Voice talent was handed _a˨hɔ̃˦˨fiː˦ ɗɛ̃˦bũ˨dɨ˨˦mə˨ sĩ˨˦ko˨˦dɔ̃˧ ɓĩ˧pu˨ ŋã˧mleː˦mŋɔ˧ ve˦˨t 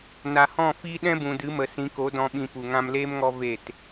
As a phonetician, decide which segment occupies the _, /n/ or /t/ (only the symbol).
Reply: n